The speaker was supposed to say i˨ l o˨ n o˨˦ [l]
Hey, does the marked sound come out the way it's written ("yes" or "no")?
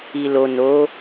no